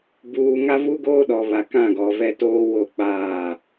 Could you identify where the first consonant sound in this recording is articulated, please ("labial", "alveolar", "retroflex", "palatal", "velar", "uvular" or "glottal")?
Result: labial